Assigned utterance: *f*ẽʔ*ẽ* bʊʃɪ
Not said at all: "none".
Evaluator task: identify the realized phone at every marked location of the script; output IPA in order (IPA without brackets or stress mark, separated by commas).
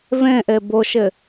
v, e